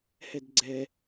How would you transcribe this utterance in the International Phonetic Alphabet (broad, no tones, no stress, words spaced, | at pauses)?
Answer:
hɛdɡ͡ǀɛ